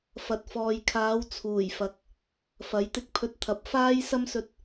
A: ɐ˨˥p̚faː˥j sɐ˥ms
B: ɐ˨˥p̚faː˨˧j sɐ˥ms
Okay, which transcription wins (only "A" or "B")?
A